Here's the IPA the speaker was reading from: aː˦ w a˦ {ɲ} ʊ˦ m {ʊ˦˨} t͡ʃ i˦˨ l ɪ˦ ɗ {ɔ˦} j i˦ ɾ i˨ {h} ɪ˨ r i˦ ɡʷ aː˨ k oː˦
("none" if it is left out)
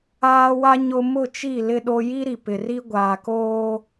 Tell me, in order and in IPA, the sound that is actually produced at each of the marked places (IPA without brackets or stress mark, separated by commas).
ɲ, ʊ˦˨, o˦, p